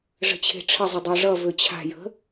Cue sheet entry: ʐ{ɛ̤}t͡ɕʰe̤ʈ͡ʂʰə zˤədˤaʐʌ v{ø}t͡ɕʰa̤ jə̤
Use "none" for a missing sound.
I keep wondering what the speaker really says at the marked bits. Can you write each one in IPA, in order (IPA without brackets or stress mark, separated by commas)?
ə̤, ø